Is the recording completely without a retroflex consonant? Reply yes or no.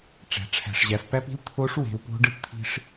no